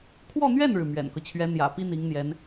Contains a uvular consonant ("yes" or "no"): no